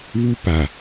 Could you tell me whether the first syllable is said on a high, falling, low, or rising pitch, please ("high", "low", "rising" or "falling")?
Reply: high